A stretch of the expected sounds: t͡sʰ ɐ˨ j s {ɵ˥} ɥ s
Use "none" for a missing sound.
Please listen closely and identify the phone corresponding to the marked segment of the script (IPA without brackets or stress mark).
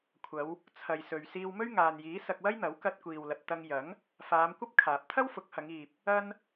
ɵ˨